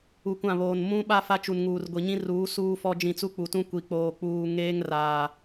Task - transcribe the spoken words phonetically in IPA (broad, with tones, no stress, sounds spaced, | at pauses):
u˨ kʷ ã˦˨ β oː˨ n m ũ˦ ɓ a˦ f a˦ t͡ʃ u˨ n ŋ uː˨ r ɡʷ i˨ ɲ ĩ˦ r uː˨˦ s uː˦ f ɔ˦ d͡ʒ ĩ˦˨ t͡s u˦ k͡p u˨ t ũ˦ kʷ i˨ k͡p oː˨ k͡p uː˨ ŋ eː˦ ŋ r aː˨